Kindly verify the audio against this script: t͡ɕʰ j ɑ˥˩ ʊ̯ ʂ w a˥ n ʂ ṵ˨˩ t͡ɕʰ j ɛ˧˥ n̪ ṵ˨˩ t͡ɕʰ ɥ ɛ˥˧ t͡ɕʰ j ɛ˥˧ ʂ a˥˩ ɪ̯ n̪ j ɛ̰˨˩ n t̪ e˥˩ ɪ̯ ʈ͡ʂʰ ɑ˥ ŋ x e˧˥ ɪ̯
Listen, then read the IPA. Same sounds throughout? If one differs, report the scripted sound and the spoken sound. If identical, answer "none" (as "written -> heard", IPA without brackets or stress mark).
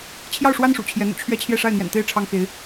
none